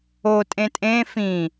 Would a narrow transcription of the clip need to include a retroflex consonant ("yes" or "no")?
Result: no